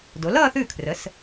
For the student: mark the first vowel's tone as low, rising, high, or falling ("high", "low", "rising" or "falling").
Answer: rising